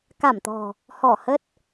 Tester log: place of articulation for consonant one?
velar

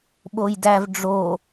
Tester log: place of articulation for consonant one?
labial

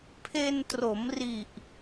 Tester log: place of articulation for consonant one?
labial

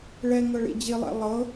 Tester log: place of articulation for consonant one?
retroflex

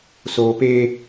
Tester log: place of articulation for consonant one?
alveolar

